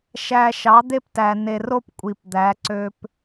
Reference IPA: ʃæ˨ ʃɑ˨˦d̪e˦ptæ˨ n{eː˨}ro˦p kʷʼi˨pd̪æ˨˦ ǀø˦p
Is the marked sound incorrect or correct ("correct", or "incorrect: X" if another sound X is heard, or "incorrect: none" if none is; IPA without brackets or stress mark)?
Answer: incorrect: e˨